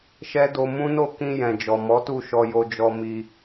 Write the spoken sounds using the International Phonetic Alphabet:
ʃ ɛ˦ d o˧ m ũ˦ n o˦˨ k ĩ˧ j ɛ̃˨ d͡ʒ ɔ˨ m ɔ˨˦ t u˦˨ ʃ ɔ˧ j o˧ d͡ʒ ɔ˧ m i˧

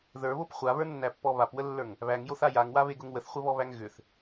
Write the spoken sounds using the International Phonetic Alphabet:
ð ə˞ β o p χʷ a β ə˞ nː æ pː ɔ β a p w ə lː ə˞ ŋ | β æ ŋ j o θ a j a ŋ w a β e ɡ ʊ ŋ w ə θ χʷ ə β ɔ β æ ŋ ɣ ʏ θ

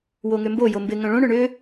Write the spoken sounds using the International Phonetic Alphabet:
w o ŋ ʏ m b o j o m b ɪ ŋ œ̃ ɭ õ ɳ ʏ ɳ ʏ

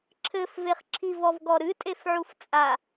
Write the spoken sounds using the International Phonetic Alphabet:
ǁʰ ɘ f v e χ ǁʰ i v ɔ v ɡ ɔ ɾ ɨ tʼ e f ʕ u f t͡sʼ a

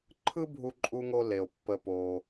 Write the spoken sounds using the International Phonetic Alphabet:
ǃʰ ɯ˦ bʱ u˨ ǃʼ u˨ ŋ o˨ l e˩ o̯ pː ə˨ p o˩

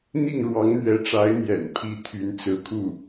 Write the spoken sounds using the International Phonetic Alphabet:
n̪ i˥˩ ŋ ɻ w ɑ˧˥ ŋ n̪ ɥ ɛ˧˥ ʈ͡ʂ a˧˥ ɪ̯ n̪ j ɛ̰˨˩ n pʰ i˧˥ t̪ʰ y˧˥ n t͡s ɹ̩˧˥ kʰ u˥˩

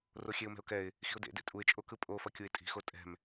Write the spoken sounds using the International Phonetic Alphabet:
r o xʲ e ʊ̯ m ɛ̤ ʊ̯ k ɛ ɪ̯ | x i̤ ʊ̯ d ḛ d ḛ tʼ u ɪ̯ t͡ʃʼ o k ɯ pʼ o f ʌ kʲ u ɪ̯ tʼ i̤ x o tʼ ɛ̤ m

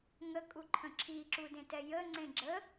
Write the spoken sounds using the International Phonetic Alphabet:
ŋ ə kʼ u ǃʰ ə̃ ǁʰ i ǁ u d ẽ t ɛ j ə ŋ͡ǀ ẽ ɡ͡ǁ ə

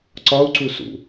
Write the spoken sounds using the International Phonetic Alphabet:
ǀ ɒ u̯ ǀ u s ṵ

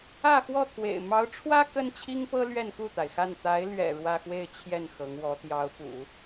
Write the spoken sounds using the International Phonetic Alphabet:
ä˥˧ x w ɔ˥˩ t̪ʰ w ḛ˨˩ ɪ̯ m ɑ˧˥ ʊ̯ ʈ͡ʂʰ w ä˥ k ə˥ n t͡ɕʰ i˥ ŋ p ɤ˥ l ɥ ɛ˥˧ n k u˥˩ t̪ a˩ ɪ̯ x a˥˩ n t̪ a˧˥ ɪ̯ l ɥ ɛ̰˨˩ ɻ w ä˥˧ x w e˥˧ ɪ̯ t͡ɕʰ j ɛ˥˩ n x ɤ˧˥ ŋ w ɔ˧˥ t̪ j ɑ˧˥ ʊ̯ p ṵ˨˩˦

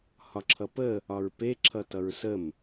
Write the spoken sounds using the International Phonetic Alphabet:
h ɒ ǁʰ ʌ p ə | ɒ ɹ p e ǁʰ ʌ t ʌ ɹ s ə m

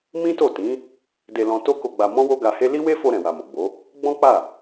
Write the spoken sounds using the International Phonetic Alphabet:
m ĩ˦ t o˦˨ t ĩ˨˦ | d e˧ l ɔ̃˧ t o˦ k o˧ ɡ͡b a˧ m ɔ̃˦ w o˦ ɡ a˧ h e˦ l i˦ w e˦ f o˧ ɾ ɛ̃˨ w a˨ m o˨ ɡ͡b o˨˦ | ɡ͡b ɔ̃˦ k͡p a˦˨

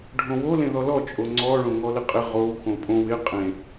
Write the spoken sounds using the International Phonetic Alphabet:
ɖʱ õ w o l ẽ ð ɔ l ɔ t͡ʃʼ o ŋ͡ǀ ɔ ɭ õ ŋ ɔ l ɪ qʼ ɪ ʁ o w x õ pʼ õ w ɪ qʼ ẽ

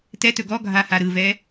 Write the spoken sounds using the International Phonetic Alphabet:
t ɛ t ɵ ɡ ɔ ɡʱ a h a ɾ ɯ v ɛ

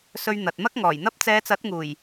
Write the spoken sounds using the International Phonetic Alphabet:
s ɵ˧ ɥ n̪ ɐ˨ t̚ m ɐ˥ k̚ ŋ ɔː˨˩ j n̪ ɐ˥ p̚ t͡s ɛː˨˧ t͡s ɐ˨˥ t̚ ŋ uː˨˩ j

